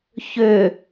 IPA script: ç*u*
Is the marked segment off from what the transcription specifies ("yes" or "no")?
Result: yes